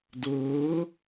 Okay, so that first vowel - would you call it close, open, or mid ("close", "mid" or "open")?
mid